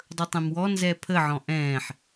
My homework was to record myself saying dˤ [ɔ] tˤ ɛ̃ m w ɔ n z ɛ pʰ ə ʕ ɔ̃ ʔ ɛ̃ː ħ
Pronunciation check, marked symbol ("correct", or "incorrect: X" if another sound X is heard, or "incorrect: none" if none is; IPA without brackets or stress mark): incorrect: ɵ